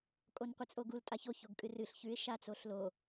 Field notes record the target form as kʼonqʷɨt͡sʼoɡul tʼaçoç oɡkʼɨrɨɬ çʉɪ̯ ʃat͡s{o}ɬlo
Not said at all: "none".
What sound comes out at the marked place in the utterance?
o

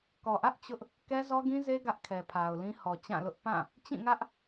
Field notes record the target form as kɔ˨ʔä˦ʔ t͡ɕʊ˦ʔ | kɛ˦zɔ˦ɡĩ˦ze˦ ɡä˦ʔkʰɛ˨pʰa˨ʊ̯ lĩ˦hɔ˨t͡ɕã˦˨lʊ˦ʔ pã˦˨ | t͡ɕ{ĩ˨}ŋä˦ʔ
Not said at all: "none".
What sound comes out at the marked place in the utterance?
ĩ˦˨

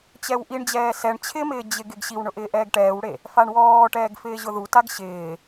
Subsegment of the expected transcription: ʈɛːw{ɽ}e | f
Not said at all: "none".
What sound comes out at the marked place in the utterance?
ɽ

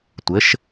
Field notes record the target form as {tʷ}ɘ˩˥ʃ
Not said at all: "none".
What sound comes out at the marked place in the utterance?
tʷ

